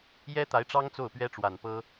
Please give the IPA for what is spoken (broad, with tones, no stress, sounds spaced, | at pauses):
j ɛ˥ t̪ a˧˥ ɪ̯ ʈ͡ʂ ɑ˥ ŋ t͡s o˥˩ ʊ̯ p ɥ ɛ˥ ʈ͡ʂ w a˨˩ n p ɤ˥